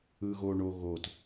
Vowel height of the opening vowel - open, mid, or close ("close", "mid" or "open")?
close